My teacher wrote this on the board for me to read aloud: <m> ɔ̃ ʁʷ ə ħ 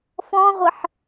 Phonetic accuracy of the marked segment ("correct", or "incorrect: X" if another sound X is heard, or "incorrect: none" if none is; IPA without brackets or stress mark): incorrect: f